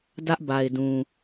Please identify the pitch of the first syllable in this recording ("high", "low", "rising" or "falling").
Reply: high